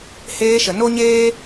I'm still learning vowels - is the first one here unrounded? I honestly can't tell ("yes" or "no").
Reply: yes